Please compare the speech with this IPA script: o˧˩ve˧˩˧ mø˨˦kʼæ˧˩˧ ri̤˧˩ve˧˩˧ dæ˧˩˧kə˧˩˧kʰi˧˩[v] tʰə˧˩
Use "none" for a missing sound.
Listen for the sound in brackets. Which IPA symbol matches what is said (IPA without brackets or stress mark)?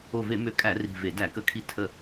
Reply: none